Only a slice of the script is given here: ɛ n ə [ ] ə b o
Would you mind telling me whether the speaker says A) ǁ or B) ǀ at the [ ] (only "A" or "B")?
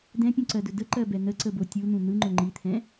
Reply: B